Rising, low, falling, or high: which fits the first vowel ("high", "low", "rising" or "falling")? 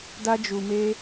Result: high